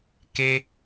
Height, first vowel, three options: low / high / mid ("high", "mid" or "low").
mid